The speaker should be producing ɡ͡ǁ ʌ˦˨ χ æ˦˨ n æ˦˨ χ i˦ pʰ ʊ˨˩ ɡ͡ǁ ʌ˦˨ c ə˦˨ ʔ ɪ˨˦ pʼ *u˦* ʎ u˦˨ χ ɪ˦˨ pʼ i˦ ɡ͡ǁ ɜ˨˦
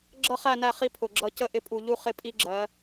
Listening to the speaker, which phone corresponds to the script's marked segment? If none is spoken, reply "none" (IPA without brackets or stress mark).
u˨˩